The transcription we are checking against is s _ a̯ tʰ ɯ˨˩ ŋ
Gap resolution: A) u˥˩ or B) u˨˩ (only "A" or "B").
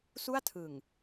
A